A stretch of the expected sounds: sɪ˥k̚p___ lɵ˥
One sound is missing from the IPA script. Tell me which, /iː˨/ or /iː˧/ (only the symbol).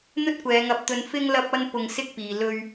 iː˨